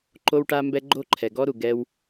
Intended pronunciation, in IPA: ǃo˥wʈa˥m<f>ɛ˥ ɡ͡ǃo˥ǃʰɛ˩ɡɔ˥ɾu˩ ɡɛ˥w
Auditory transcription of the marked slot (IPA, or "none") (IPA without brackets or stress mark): b